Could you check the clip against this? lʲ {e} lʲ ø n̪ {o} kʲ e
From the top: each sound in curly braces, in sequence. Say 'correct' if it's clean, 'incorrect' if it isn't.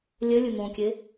incorrect: ø, incorrect: õ

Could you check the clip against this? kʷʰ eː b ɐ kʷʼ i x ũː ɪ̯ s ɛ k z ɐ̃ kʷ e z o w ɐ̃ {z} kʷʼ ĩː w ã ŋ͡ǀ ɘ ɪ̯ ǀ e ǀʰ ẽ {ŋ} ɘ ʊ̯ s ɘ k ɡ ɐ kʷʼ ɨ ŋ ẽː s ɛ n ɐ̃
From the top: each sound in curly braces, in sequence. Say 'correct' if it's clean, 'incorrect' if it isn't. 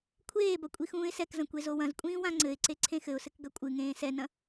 correct, incorrect: x

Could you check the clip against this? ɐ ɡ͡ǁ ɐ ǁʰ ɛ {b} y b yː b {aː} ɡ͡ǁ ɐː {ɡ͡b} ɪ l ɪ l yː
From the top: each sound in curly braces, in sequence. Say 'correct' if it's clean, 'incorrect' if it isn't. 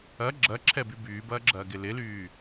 correct, incorrect: ɐː, incorrect: ɡ

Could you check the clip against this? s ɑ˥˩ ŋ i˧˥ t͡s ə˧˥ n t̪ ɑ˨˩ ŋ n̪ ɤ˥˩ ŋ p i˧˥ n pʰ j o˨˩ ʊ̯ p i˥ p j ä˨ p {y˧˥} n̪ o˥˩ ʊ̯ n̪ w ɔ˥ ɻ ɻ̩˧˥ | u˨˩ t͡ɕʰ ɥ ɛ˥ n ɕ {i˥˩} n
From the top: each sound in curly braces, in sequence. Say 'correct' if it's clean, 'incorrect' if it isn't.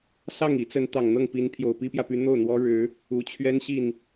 correct, correct

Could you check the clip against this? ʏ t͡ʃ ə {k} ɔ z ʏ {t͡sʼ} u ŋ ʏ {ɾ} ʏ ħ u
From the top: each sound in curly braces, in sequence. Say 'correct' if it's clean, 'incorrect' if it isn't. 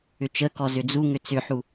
correct, incorrect: d͡z, incorrect: t͡s

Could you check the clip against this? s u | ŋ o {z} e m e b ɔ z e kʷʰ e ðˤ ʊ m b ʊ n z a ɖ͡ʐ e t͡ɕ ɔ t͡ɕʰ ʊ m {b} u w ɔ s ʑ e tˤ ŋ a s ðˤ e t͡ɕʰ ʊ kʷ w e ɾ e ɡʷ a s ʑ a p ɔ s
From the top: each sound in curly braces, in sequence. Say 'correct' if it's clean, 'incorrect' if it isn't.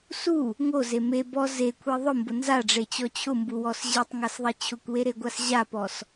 correct, correct

